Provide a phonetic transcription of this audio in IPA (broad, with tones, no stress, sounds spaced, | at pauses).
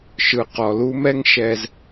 ʃ ɯ˨ q ɔ˨ l u˦ m ɛ˦ ŋ ʃ ɛ˨ z